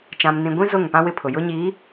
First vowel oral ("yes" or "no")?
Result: no